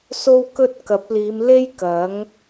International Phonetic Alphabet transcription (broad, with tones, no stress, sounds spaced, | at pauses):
s o˥ w k ɵ˥ t̚ k ɐ˨˥ p̚ l iː˨˧ m l e˥ j k ɐ˨˥ ŋ